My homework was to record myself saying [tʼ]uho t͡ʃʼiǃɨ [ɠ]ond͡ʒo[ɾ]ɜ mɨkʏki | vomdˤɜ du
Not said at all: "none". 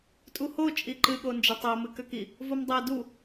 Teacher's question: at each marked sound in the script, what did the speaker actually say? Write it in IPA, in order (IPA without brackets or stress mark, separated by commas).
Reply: tʼ, ɠ, tˤ